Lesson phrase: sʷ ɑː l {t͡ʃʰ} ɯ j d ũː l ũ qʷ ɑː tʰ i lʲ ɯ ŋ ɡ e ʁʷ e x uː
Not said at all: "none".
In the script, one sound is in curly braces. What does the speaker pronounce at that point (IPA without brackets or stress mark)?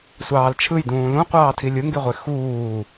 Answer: t͡ʃʰ